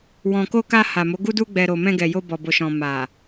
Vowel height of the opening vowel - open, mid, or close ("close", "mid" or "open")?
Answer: mid